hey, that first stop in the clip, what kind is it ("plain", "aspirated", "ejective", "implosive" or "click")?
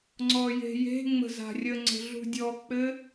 click